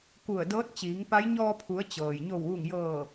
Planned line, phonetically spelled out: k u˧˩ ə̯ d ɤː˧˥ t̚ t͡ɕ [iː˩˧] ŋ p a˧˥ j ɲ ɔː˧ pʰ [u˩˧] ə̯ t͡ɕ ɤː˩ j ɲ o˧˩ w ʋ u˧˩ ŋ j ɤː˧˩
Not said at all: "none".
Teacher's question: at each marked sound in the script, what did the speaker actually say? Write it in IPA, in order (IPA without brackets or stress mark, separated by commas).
iː˩˧, u˩˧